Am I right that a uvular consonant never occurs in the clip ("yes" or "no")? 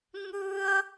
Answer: yes